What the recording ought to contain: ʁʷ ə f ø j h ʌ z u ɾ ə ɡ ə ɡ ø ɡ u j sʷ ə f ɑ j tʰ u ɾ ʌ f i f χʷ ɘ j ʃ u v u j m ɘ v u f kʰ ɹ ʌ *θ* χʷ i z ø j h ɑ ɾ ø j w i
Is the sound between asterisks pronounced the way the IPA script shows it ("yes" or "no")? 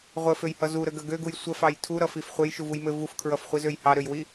no